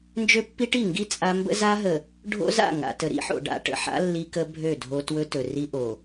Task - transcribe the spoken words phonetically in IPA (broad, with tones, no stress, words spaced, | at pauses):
nd͡ʒø˦pːi˦ʈi˦˨ ŋɡi˦ t͡sʼa˦ mbə̰˦za˦ɦə˨ | ɖʱo̰˦za̰˦˨ ŋa̰˨ tə˨ɾḭ˦ħo̰˨ ɖa̰˨ʈə̰˨ħa̰˦ lːi˦kə˦bʱø˦˨ dʱo˦ twɵ˦tɵ˨ri˦ ʔo˨